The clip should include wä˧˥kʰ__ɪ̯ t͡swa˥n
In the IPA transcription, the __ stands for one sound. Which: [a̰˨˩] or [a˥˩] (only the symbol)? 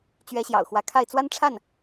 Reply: a˥˩